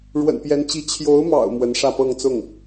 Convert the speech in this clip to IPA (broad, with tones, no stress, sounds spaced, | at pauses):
ɻ w ə̰˨˩ n p j ɛ˧˥ n t͡ɕ i˧˥ t͡ɕʰ j o˧˥ ʊ̯ m ɑ̰˨˩ ʊ̯ m w ə˧˥ n ʂ ä˥˧ p ɤ˥˧ ŋ t͡s ʊ˥˩ ŋ